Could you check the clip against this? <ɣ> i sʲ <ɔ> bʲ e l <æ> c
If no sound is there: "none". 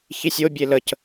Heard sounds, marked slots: ç, o, ə

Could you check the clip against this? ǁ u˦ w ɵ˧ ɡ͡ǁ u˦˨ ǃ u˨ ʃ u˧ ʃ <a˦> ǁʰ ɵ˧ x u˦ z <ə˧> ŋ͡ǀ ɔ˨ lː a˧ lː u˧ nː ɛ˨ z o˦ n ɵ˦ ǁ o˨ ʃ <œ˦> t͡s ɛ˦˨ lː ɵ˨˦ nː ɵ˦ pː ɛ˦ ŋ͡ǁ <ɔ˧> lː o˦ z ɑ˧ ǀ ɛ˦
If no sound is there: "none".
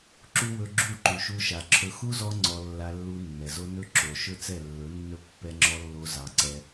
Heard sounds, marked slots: a˨, ɔ˧, ɵ˦, ɔ˦

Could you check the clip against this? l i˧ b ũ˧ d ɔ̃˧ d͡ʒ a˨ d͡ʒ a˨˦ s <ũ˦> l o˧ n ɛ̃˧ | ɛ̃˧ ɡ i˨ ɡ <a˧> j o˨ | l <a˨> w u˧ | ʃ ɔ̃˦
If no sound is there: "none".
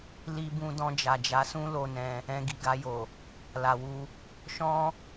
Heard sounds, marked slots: ũ˦, a˧, a˨

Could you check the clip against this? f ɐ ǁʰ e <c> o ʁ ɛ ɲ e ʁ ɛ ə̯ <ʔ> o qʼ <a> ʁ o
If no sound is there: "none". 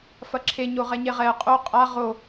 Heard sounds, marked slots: ɲ, qʼ, a

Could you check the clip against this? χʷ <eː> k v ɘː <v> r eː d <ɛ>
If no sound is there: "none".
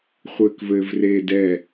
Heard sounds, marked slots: ɘː, v, ɛ

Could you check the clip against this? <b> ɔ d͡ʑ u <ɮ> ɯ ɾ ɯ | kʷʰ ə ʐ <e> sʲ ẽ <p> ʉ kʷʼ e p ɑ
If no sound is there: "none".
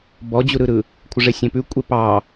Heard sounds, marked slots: b, ɾ, e, p

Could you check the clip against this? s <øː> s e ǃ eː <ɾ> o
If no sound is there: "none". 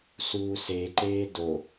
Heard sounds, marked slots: uː, d

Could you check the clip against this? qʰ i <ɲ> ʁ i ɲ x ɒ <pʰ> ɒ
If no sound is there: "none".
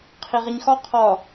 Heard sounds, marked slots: none, qʰ

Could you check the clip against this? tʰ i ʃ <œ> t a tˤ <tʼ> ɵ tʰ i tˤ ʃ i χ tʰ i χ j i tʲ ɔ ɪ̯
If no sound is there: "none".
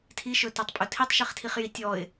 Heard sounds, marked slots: ɵ, pʼ

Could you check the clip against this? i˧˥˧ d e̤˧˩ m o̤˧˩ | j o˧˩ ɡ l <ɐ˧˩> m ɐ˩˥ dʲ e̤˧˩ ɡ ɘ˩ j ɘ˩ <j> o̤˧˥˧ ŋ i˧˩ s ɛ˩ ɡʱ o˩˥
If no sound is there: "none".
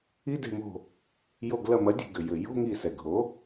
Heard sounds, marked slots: ɐ˧˩, j

